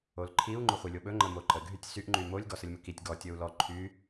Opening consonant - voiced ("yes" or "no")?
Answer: yes